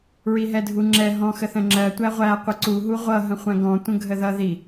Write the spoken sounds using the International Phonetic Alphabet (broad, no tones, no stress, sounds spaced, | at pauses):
ɹ i ɦ ɛ dʱ u ŋ͡ǁ ɛ ɦ ɔ̃ x ə θ ə̃ ŋ͡ǁ ɜ tʷ æ ʁʷ æ qʷ ɪ ǀ u ɦ u ʁʷ ʌ ɦ ə̃ χʷ æ̃ ɡ ɔ̃ tʷ ə̃ ɡʱ ə ð ʌ ð i